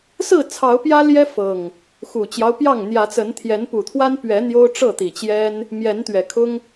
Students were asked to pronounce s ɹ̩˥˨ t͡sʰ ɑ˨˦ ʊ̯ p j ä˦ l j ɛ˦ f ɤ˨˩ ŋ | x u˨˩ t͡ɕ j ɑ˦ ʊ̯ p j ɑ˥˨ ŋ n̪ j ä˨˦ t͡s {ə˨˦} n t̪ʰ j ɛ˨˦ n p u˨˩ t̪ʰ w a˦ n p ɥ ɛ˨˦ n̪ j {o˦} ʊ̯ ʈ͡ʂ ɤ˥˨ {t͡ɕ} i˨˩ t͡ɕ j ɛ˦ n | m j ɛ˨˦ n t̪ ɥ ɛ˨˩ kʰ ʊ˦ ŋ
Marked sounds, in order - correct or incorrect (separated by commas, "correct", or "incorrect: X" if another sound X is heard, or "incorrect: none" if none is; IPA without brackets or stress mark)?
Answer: correct, correct, incorrect: t̪